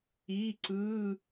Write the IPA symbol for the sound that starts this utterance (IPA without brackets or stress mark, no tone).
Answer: i